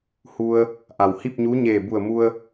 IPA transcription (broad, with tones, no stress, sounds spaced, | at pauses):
h u˧ ə̯ | ʔ a˩ w h i˥˨ p̚ ɲ uː˧˥ ɲ eː˧˩ b u˧˩ ə̯ m u˧ ə̯